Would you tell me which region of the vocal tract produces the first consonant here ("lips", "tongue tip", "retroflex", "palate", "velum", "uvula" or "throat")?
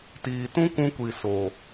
tongue tip